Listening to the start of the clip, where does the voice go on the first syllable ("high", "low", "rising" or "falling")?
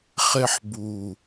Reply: high